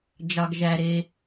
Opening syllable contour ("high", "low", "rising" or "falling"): low